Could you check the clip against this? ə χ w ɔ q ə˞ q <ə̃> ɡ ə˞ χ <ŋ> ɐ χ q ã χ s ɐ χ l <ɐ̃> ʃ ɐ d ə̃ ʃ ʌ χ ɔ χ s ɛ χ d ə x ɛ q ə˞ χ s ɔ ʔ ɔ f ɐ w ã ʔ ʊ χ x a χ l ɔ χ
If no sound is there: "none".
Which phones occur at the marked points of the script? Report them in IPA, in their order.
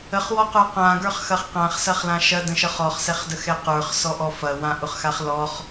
ã, x, ã

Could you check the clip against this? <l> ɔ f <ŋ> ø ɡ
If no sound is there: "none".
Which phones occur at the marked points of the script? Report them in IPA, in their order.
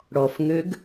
ɽ, ŋ

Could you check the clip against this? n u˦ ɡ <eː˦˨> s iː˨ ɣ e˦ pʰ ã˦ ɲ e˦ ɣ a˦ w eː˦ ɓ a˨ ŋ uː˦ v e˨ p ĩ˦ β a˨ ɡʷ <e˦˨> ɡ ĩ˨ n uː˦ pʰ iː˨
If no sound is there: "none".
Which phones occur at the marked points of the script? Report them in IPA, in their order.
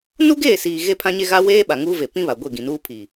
eː˦˨, e˦˨

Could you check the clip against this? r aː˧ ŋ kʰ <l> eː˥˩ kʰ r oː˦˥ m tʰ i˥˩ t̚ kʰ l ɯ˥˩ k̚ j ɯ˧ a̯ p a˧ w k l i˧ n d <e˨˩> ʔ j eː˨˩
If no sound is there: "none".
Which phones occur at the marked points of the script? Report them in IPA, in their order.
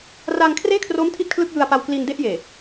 r, e˥˩

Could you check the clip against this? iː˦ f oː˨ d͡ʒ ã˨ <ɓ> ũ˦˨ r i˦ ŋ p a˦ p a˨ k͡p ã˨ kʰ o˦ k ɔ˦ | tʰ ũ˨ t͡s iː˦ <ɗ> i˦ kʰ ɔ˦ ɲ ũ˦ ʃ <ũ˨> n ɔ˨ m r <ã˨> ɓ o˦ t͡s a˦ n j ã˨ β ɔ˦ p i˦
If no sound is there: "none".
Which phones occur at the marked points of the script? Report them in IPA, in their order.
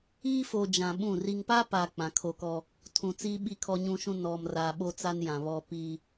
ɓ, ɓ, ũ˦, a˨

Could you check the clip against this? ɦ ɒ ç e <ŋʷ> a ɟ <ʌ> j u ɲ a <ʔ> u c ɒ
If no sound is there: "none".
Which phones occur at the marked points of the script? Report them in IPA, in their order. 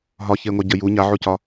ŋʷ, ə, ʕ

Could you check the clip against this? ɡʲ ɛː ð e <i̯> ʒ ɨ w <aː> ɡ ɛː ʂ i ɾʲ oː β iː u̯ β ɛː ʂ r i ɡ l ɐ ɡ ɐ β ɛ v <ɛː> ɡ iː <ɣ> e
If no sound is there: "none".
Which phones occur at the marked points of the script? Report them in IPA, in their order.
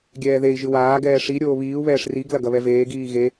i̯, aː, eː, ɣ

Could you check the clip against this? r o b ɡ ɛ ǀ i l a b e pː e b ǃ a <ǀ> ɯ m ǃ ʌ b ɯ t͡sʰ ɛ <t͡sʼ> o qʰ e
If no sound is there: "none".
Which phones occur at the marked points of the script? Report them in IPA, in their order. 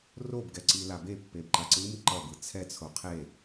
ǀ, t͡sʰ

